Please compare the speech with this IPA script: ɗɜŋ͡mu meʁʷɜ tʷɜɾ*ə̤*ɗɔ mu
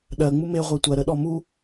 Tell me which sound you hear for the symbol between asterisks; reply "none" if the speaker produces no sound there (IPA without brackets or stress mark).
ə